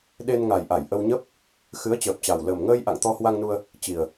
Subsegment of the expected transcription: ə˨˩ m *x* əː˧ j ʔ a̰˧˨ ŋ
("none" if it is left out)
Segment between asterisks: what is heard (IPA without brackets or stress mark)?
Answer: ŋ